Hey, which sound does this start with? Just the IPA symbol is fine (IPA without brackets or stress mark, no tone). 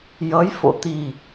j